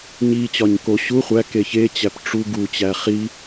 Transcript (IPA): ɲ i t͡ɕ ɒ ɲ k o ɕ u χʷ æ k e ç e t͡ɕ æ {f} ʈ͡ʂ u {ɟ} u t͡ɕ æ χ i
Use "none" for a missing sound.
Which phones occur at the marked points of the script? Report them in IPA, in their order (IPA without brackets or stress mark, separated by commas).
p, ɡ